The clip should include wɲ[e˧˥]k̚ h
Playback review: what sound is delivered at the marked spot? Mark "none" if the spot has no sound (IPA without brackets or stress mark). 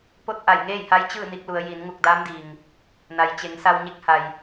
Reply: e˧˥